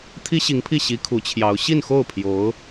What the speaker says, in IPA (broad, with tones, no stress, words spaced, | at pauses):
t̪ʰi˥ɕi˧˥ŋpʰi˥˩ ɕi˧˥ kʰu˧˥t͡ɕʰjɑ˧˥ʊ̯ ɕi˥˧nxo˥˩ʊ̯ pʰjo˧˥ʊ̯